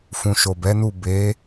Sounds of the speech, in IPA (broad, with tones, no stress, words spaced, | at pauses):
fũ˨ʃo˨bɛ˨˦nu˦˨ be˨˦